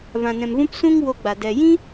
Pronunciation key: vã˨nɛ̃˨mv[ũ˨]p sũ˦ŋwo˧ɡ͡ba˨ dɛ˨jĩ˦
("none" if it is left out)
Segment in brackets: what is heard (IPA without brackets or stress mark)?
ũ˧